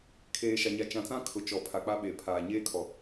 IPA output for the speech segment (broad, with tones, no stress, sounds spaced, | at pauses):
kʰ eː˨ ʃ a˨ ɲ a˨ t͡ʃ ã˨ t͡s ã˦ kʰ ʊ˨ t͡ʃ ɔ˨ pʰ a˨ k͡p a˦ ɓ e˨ pʰ aː˨ ɲ eː˦ kʰ ɔ˨